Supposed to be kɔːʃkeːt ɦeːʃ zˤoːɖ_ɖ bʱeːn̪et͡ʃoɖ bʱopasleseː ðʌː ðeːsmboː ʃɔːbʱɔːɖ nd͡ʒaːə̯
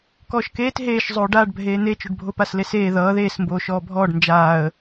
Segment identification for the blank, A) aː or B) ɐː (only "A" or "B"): A